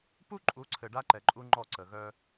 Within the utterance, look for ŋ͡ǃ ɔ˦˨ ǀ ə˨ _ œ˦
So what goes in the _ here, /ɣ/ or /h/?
ɣ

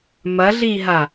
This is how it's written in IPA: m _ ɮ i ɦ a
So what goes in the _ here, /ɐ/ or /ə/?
ɐ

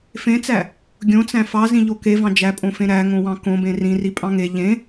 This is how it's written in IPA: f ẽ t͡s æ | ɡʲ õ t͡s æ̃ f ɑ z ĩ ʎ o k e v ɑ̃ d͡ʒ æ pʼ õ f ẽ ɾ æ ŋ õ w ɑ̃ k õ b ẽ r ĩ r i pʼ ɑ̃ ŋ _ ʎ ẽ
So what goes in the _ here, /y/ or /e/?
e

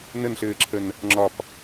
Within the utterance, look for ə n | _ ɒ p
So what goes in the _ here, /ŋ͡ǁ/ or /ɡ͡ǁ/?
ŋ͡ǁ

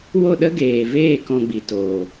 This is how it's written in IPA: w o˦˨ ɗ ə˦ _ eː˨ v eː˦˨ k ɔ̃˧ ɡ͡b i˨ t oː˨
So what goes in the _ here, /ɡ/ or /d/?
ɡ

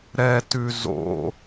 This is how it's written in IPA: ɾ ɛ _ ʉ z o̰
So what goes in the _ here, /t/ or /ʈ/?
t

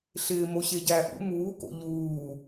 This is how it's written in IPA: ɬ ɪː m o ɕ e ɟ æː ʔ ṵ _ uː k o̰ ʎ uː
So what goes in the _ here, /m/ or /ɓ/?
m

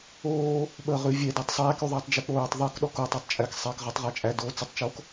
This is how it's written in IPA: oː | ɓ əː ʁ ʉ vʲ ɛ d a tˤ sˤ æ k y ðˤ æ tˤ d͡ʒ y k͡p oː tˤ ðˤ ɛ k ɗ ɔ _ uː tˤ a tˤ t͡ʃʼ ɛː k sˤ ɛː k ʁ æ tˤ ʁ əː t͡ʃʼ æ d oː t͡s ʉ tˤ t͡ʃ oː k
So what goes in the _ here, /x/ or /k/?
k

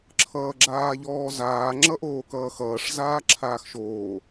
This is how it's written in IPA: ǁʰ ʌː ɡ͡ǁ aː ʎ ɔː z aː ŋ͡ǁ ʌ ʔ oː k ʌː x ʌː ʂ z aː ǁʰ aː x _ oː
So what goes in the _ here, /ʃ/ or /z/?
ʃ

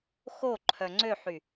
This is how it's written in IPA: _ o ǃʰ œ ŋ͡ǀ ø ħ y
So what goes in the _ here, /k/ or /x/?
x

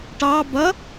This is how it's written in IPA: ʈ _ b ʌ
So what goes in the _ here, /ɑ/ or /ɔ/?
ɑ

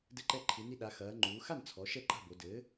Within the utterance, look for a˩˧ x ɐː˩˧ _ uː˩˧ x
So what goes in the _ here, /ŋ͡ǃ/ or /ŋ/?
ŋ͡ǃ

